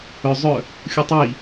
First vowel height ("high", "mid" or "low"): mid